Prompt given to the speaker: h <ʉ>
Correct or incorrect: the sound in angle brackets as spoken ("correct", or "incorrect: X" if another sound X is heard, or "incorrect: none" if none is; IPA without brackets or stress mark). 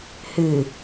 incorrect: ɨ